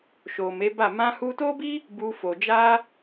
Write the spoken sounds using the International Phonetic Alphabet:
ʃ o˨ m e˨˦ b a˦˨ m ã˧ h u˧ t o˦ b i˦ | b u˧ f o˨ d͡ʒ a˧

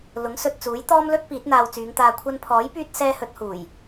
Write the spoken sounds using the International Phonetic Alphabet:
l ʊ˨˥ ŋ s ɵ˨ t̚ t͡s uː˨˥ j t̪ ɔː˥ m l ɵ˥ t̚ p iː˨˥ t̚ n̪ aː˧ w t͡s yː˨˧ ŋ t̪ aː˧ kʷʰ ɐ˧ n pʰ ɔː˨˥ j p yː˧ t̚ s ɛː˥ h ɵ˨˥ t̚ h uː˨˩ j

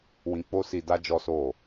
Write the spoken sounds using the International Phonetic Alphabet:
w ĩ˧ k͡p o˦ s i˧ d a˦ d͡ʒ ɔ˦ s o˦˨

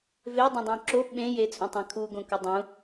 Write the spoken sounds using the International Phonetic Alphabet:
v e dˤ ẽ dˤ õ ǁ o ɓ ẽ j e t͡sʼ ũ tˤ æ̃ kʰ u ɡ õ k ʊ dˤ ũ

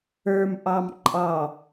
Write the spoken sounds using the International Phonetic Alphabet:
ə˞ m ʔ ɑ m ǃʼ ɑ

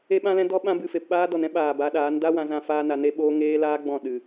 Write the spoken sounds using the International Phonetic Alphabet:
e˦ ɓ ã˦ l ɛ̃˦ d ɔ˦ ɓ ã˦ b ɨ˧ f e˨ p ɓ aː˧ d ɔ˨ n ɛ̃˦ ɓ aː˨ b a˨˦ ɗ aː˨˦ n d a˦ w ã˧ z ã˧ f aː˦ n a˧ n e˦ ɓ oː˦ ŋ eː˦ l aː˦ ɡ͡b ɔ̃˦˨ ɗ ɨ˨

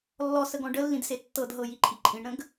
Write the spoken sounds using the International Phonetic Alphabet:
lː ɔ s ə ɡ ɔ̃ ɖ ə lː ĩ d s e tː ɤ d ɦ ɤ j i ǃʼ i ǃʼ ĩ ɳ ɾ ə̃ ɡ

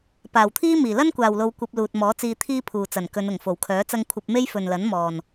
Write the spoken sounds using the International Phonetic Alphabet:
p aː˨˩ w t̪ʰ iː˥ m iː˨˩ l ɐ˥ n kʷ aː˨ w l o˧ w kʷ ɐ˧ p̚ l uː˨ t̚ m ɔː˨˥ t͡s iː˧ t̪ʰ iː˥ pʰ uː˨ t͡s ɐ˨˩ n k ɵ˨˧ n ʊ˨˩ ŋ f o˨˩ w kʰ œː˨˥ t͡s ɐ˥ ŋ kʷʰ ɐ˧ p̚ m e˥ j f ɵ˨ n l ɐ˨˥ n m ɔː˨˩ n

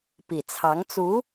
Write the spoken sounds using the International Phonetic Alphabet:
p i˨˩ t͡sʰ ɑ˧˥ ŋ t͡s u˧˥

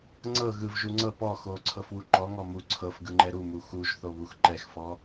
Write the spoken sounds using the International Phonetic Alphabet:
ŋ͡ǀ ɤ ɣ ɯ v ʒ u ŋ͡ǀ ɤ p ɔ x o ǀʰ ɤ f w u ǃ ɔ ŋ ɔ m u ǀʰ ɤ f ɡ ɯ ŋ͡ǃ ɛ ɾ u m u x u ʒ θ o β u x ǃ ɛ x f ɔ

